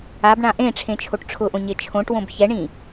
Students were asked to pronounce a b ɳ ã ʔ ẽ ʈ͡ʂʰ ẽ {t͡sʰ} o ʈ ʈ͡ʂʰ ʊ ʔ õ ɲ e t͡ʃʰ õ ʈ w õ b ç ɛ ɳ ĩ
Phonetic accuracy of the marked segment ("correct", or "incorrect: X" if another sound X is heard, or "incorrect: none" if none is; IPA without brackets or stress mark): incorrect: t͡ʃʰ